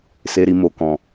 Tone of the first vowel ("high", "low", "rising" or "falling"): low